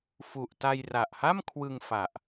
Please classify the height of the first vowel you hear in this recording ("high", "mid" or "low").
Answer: high